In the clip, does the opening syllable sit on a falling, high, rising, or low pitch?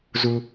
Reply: high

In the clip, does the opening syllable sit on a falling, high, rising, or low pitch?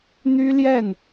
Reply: high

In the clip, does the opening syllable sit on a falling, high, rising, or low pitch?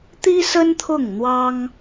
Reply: high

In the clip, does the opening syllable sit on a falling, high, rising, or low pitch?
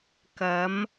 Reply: rising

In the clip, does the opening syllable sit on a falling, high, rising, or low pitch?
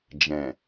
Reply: low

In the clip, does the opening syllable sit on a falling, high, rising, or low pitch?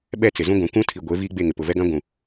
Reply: falling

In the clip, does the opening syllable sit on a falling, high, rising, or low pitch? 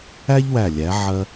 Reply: high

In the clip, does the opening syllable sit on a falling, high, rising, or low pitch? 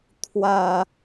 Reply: falling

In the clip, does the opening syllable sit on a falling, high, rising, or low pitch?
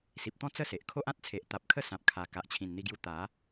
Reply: low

